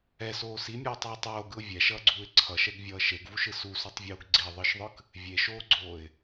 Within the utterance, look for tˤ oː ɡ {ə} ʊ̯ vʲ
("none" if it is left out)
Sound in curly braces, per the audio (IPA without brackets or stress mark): ɯ